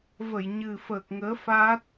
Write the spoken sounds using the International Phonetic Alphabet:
v ə˧˩ j ɲ ɨ˨˩ f əː˨˩ k̚ ŋ əː˨˦ f aː˦˥ t̚

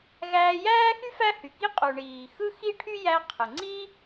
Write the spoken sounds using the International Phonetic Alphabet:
ɣ æː˧ j æː˥ x y˥ f æ˥ h y˩ k i˥ qʼ u˩ ɳ iː˩ x ɯ˥ x i˥ ʈʰ y˥ j æ˧ qʰ ɯ˩ ŋ͡ǀ iː˥

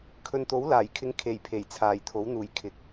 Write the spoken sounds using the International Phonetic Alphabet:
kʰ ɵ˨ n t̪ o˨˥ w l aː˨˩ j kʰ ɪ˧ ŋ kʰ e˨˩ j pʰ e˨˩ j t͡sʰ aː˨˩ j t̪ʰ o˨˥ w n̪ uː˨˩ j kʰ ɪ˨˥ k̚

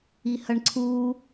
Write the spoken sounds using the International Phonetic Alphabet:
i h ɐ ɳ ǀʰ u

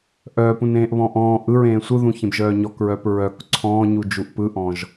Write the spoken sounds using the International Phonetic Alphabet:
ʔ œː p ũ n ẽː ʔ β ɔ̃ː ʔ ɔ̃ː ʔ ɯ ɹ ẽː sʷ ɯ ð ũ ç ẽ b ʒ œː ɲ ɔ k ɹ œː p ɹ œ k ǀʰ ɔ̃ː ɲ u d͡ʒ u ʔ p ɯ ʔ ɔ̃ ʒ

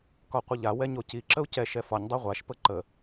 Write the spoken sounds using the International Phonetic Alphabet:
k ɒ qʷ ə ʎ a w ɛ ɲ o c i ǁ ə u̯ c ɛ ʃ ɛ f ɒ ɲ dˤ ɛ ʁʷ a ʃ p ə ǃ ə

